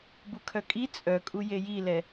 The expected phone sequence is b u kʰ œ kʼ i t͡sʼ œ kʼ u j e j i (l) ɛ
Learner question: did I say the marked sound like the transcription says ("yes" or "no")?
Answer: yes